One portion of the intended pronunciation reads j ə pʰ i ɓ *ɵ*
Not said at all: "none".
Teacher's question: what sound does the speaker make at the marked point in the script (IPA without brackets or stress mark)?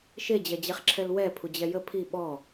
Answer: ɔ